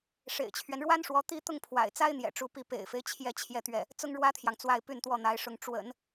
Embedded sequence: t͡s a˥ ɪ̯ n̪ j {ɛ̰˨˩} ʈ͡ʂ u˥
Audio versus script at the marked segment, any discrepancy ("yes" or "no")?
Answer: no